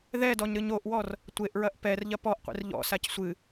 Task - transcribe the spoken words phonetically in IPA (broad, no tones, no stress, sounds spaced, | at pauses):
ð ɛ d ɔ ɲ ɾ ɨ ɲ o ʔ w ɔ r | tʷ e ʔ ɹ ɐ ʔ p ɛ r ʎ ɐ p ɔ ʔ qʷ ḭ r ʎ ɔ̰ s a c sʷ ɨ